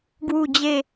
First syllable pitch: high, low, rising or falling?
low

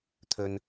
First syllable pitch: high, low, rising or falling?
low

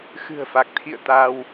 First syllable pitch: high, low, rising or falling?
low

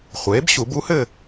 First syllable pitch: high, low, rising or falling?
rising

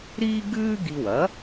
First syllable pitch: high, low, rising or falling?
high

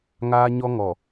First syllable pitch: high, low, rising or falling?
high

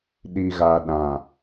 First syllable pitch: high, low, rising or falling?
low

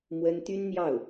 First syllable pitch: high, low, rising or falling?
high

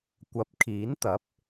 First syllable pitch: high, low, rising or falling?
rising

